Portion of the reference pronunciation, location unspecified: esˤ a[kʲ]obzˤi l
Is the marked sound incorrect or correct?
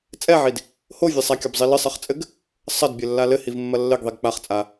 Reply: correct